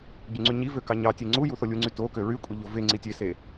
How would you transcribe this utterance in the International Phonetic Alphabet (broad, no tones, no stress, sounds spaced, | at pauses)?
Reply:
ɟ y ŋ͡ǀ y ɲ i v ø k ɑ ɲ ɑ tʲ e ŋ͡ǀ u j u θ o lʲ u ŋ͡ǀ y t o k ø ɹ y kʷʼ e ʎ o v e ŋ͡ǀ i tʲ e s e